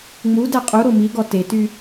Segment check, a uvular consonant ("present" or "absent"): present